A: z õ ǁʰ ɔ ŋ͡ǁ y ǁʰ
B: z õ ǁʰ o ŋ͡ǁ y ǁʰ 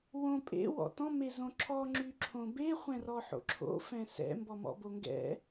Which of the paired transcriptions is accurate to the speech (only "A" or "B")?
A